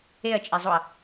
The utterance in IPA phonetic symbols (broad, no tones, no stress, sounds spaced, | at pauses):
e ɐ̯ t͡ʃʼ e zˤ o ɐ̯